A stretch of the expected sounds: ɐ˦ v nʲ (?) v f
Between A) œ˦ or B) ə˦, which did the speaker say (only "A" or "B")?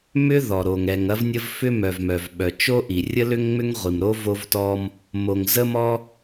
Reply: B